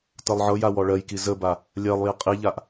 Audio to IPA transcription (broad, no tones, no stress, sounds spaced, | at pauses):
t ɤ lˠ ʕ ɤ j a w ɔ ɭ ɜ j k i z ə b a | lʲ ɜ lˠ j i qʼ i ʎ a ʔ